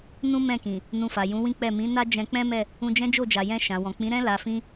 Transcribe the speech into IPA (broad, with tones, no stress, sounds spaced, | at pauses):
n ũ˦ m ɛ̃˦˨ k ĩ˨ | n ũ˧ f a˨ j ũ˨˦ w ĩ˦ k͡p ɛ˦˨ m ĩ˨˦ n a˦ d͡ʒ ɛ̃˧ k͡p ɛ̃˦ m ɛ˦˨ | ũ˧ d͡ʒ ɛ̃˦ d͡ʒ o˦˨ d͡ʒ a˨ j ɛ̃˧ ʃ ã˨ w ɔ̃˨ k͡p ĩ˨˦ ɾ ɛ̃˦ l a˧ f ĩ˦